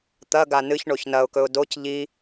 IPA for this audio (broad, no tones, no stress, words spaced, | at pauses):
t̪ɐ ɡanɨç ɳoçnɐʊ̯kɵʊ̯ doc ʎi